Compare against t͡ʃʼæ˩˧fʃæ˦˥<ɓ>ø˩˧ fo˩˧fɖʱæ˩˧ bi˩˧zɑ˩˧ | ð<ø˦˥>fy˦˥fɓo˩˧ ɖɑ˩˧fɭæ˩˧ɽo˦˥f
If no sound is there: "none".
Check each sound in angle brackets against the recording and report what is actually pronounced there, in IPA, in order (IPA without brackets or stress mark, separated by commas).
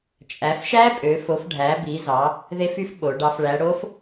pʼ, e˦˥